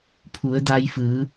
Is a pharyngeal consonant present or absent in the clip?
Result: absent